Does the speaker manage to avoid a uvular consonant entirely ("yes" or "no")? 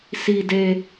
yes